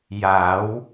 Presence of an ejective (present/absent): absent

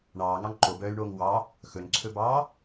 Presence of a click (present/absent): present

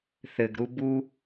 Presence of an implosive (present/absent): absent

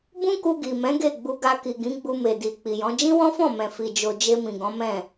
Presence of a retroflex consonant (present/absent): absent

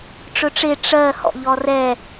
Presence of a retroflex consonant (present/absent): present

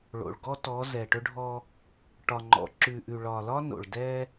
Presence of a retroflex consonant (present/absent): present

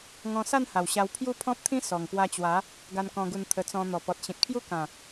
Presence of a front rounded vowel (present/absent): absent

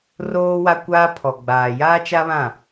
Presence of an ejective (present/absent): absent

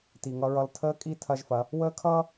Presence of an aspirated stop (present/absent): present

